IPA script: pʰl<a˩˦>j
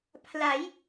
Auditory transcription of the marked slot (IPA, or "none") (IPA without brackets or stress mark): a˩˦